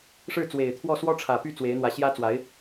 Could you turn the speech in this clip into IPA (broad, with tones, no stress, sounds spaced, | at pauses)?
ʂ ɻ̩˥˩ t͡s w e˨˩ ɪ̯ t̪ʰ w ɔ˥˩ s w ɔ˥ ʈ͡ʂʰ ä˨˩ p y˥˩ t͡s w e˧˥ ɪ̯ n̪ w ä˧˥ ɕ j ä˥ t͡s w a˧˥ ɪ̯